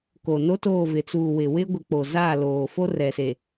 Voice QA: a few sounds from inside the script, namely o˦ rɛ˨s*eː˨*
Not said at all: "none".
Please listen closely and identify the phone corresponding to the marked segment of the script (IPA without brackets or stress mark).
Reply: e˨